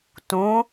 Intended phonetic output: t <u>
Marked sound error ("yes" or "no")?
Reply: yes